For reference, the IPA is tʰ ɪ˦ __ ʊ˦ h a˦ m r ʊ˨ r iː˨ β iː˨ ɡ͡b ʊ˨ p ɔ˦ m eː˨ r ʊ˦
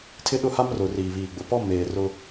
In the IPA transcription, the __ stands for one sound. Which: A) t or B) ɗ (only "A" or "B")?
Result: B